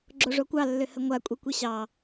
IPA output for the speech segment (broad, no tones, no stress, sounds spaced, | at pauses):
ɡ͡ǁ o ʐ o kʷ ɑ lː ʏ h ə ŋʷ a kʷʼ i kʷ i ɕ ɑ